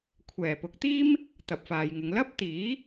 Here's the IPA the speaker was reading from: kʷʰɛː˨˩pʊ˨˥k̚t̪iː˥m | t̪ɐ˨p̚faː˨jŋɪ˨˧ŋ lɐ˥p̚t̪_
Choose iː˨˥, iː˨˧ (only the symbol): iː˨˥